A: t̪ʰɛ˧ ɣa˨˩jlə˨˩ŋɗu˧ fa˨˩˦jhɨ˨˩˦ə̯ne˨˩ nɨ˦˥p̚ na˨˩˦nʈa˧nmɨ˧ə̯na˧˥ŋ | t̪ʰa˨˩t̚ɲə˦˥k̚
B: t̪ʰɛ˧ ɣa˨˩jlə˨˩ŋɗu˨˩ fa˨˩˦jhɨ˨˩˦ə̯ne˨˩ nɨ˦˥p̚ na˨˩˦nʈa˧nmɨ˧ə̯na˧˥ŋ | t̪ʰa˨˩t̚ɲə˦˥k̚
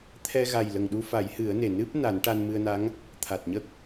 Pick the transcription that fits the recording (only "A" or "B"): A